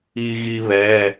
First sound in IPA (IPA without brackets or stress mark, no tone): i